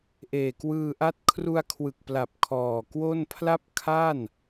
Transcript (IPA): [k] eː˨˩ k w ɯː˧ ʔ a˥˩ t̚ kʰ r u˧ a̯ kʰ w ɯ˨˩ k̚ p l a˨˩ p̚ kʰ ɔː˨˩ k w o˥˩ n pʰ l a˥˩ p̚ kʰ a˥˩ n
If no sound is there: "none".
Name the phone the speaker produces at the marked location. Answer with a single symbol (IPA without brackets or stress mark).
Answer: ʔ